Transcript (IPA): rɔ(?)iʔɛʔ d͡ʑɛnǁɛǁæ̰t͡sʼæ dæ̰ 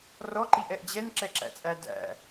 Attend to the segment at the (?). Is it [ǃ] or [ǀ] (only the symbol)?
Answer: ǃ